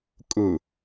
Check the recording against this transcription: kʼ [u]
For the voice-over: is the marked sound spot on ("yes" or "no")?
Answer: no